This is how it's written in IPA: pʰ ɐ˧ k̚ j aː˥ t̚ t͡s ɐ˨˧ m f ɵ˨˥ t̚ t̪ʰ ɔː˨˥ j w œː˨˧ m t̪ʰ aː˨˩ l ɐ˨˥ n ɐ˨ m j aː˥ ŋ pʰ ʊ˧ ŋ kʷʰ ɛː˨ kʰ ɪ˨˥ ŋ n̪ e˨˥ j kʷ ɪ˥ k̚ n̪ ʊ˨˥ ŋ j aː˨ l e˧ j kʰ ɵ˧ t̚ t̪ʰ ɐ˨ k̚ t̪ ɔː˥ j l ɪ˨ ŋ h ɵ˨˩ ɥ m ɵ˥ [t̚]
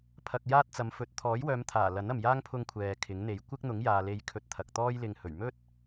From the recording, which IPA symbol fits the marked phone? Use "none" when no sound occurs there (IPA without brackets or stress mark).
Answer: t̚